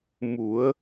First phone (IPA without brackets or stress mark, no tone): m